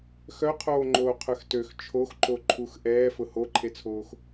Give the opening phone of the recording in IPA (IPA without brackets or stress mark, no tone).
x